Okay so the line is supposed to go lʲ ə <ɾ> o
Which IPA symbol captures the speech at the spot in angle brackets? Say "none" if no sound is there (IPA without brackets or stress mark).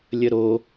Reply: ɾ